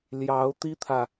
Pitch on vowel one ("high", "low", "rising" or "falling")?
rising